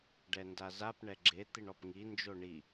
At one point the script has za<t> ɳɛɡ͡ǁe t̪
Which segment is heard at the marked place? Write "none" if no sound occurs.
p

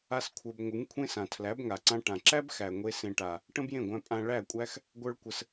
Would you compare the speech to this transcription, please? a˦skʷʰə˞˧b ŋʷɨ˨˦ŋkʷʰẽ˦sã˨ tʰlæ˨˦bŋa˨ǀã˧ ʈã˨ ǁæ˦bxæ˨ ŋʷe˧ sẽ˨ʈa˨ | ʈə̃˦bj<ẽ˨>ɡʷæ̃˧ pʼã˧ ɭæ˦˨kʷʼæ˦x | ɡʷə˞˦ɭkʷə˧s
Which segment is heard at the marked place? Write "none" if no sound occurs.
ẽ˦˨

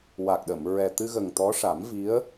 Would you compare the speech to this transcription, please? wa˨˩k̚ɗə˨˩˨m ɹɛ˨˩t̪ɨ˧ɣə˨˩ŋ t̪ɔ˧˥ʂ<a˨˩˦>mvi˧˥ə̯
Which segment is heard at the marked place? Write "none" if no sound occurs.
a˨˩˦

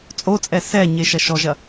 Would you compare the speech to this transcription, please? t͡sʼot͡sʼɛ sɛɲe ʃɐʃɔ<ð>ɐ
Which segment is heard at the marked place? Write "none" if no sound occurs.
ʒ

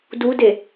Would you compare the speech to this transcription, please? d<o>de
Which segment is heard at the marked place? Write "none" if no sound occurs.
u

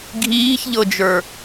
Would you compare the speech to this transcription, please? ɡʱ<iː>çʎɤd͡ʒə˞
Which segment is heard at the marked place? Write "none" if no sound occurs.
iː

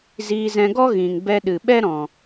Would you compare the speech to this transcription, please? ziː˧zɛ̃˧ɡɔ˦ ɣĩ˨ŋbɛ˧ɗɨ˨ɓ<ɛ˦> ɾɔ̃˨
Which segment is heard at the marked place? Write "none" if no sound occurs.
ɛ˦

